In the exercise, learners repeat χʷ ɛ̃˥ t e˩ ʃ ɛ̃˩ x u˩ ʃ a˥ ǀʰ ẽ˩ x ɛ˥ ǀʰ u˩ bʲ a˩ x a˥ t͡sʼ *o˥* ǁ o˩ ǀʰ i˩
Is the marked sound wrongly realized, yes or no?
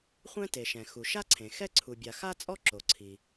yes